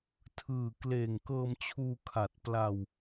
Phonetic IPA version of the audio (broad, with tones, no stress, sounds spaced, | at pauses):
tʰ ɯː˨˩ k l eː˨˩ ŋ k ɤː˧ m t͡ɕʰ uː˧ kʰ a˨˩ t̚ p l a˧ w